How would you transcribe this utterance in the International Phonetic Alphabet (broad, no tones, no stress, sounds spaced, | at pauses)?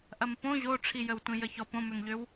ʔ ɐ m p õ ʑ o ʈ͡ʂʰ i j ə w tʷ ĩ j ə ç ɔ p õ m ø ŋ ʎ ø w